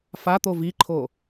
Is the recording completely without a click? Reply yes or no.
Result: no